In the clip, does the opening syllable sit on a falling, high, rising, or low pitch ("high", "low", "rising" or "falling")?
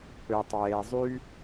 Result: low